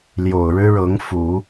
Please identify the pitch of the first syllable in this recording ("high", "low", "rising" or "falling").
low